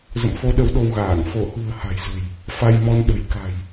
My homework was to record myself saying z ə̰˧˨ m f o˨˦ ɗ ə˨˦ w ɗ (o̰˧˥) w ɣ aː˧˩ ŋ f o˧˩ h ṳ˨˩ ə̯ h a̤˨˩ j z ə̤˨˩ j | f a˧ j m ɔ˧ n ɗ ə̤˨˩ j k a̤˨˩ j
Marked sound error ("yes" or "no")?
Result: yes